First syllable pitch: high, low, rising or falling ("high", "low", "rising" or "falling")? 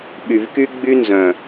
low